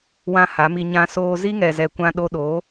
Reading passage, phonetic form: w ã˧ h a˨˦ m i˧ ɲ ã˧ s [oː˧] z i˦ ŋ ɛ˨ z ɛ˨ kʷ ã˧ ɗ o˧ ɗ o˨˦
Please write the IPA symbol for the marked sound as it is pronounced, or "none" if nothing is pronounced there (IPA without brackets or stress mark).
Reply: oː˧